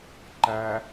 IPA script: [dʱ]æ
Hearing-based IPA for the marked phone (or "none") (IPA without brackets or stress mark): ǃ